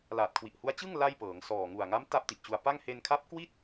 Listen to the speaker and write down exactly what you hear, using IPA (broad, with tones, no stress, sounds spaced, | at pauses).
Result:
l aː˨˩ t̚ kʰ w i˨˩ ʔ h u˦˥ a̯ t͡ɕ ɯ˥˩ ŋ l a˥˩ j p ɤː˩˦ ŋ s ɔː˨˩ ŋ u˨˩ a̯ ŋ a˦˥ m t a˥˩ p̚ t i˨˩ ʔ t͡ɕ u˧ a̯ p a˥˩ ŋ h e˧ n kʰ a˦˥ p̚ k w i˥˩ t̚